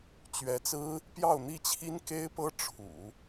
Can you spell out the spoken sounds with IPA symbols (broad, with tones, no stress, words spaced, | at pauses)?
t͡ɕɥɛ˧˥t͡sɹ̩˥ | pjɑ˥˧ʊ̯n̪i˥˩t͡ɕʰi˥n ke˥ɪ̯pɤ˥ ʈ͡ʂʰṵ˨˩˦